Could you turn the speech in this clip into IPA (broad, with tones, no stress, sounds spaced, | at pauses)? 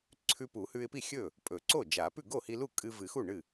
ǀʰ ʉ˧ p u˨˩˦ h ʉ˧ ɪ̯ p i˥˩ xʲ ɵ˥˩ | pʼ ɵ˨˩˦ ǀ o˥˩ d͡ʒ a˨˩˦ p ʉ˥˩ ɡ o˥˩ h i˧ l u˥˩ kʼ ɨ˧ v ɨ˨˩˦ x u˥˩ ɳ ɨ˥˩